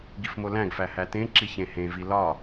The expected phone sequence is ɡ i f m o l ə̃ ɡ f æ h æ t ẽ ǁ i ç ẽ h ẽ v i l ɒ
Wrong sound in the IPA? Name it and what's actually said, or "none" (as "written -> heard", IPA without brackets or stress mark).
ə̃ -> æ̃